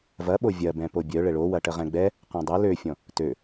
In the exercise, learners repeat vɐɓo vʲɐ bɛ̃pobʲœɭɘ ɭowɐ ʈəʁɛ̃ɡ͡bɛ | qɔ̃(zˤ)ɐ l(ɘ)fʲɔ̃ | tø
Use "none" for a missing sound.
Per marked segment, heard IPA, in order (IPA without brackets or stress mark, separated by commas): dˤ, ø